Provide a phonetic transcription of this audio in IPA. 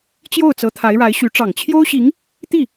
t͡ɕ j o˥˩ ʊ̯ t͡s ɤ˧˥ t̪ʰ a˧˥ ɪ̯ ɻ a˧˥ ɪ̯ ɕ y˧˥ ʈ͡ʂ ɑ˨˩ ŋ t͡ɕʰ j o˥ ʊ̯ ɕ i˧˥ ŋ | t̪ i˥˩

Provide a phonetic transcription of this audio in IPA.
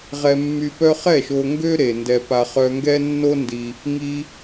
ʁ ɛ˧ mː y˧ p œ˦ χ ɛ˦˨ ʃ o˧ ŋ ɡ ø˦ ɾ e˨ n d ɛ˧ p a˧ χ œ˧ ŋ ɡ ɛ˦ nː o˦ n d i˧ | ŋ i˦

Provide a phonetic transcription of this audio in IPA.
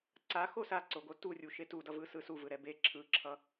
ǀ a x o s a ǀ o ɡ o t u rʲ u ʃ e t u d ʌ v ɯ s ɯ s u v ɯ ɾ ɛ b e ǁʰ ɯ ǁʰ ʌ

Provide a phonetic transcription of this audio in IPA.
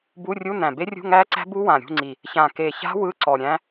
b u˧˥˧ rʲ u˧˥˧ n æ̃˨˩ b e˦˥ rʲ ṳ˧˥˧ ŋ æː˦˥ ǀ æ̤˦˥ b u˦˥ w ã˨˩ ɾʲ ṳ˧˥˧ ŋ͡ǀ i˨˩ | ç ã˨˩ k e˨˩ ç a̤˦˥ w ɯ˧˥˧ ǀ ɔ˨˩ ɾʲ æ̃˦˥

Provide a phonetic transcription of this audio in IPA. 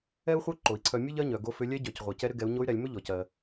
ɛ˥ u̯ χʷ œ˥ ǃ o˩ i̯ ǀʰ œ˧ mʲ œ˥ ʎ ɜ˧˥ ɲ œ˩ ɡ o˧˥ f ʏ˧˥ lʲ ɛ˧˥ ɟ œ˩ c ʁʷ ɜ˩ c ɛ˧ ɾ ʏ˧ ɡ ɛ˩˧ u̯ ɲ o˧˥ y̯ ɾ ɛ˩˧ lʲ m ʏ˥ ʎ ɔ˩ c ɜ˩

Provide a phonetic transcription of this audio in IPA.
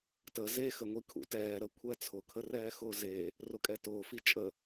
t ə z e x ə ŋʷ i kʰ ṵ t ɛː ɾ ə kʷʰ ɛ t͡sʰ ʊ kʰ ə r ɛː x ʊː z e | r ʊ kʼ ɛ t ʊː f i t͡ʃʼ ə

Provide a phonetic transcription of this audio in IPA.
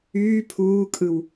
yː pʰ uː kʼ ɯ w

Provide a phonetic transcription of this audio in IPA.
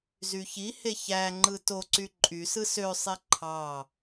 z y ç i h e ç æ ŋ͡ǃ ɯ t o ǀ y ǃʼ y s ɯ s ø sˤ e ǃʰ ɑ

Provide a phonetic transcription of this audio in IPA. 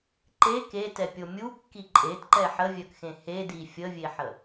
ǃ e k e t ɛ pʲ o mʲ u kː i ǃʼ e t ǃ ɛ ħ ə vʲ œ k x ẽ h e d i fʲ ə vʲ e ħ ə

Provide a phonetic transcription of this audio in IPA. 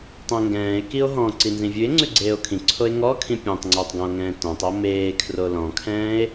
tˤ õ ŋ ɡ ɛ̃ː e̯ k i o̯ ɦ ɔ̃ ǀ i n z ĩ vʲ ʉ e̯ ŋ͡ǀ ʉ ɡ͡ǀ eː o̯ kʰ ĩ ǀʰ o e̯ ŋ ɔ kʰ ĩ pʲ ɛ̃ tˤ ŋ͡ǀ oː tˤ ɡ ɔ̃ o̯ ŋ ɛ̃ː t ɔ̃ tˤ o m eː kʰ r o l ɔ̃ kʰ ɛ̃ː e̯

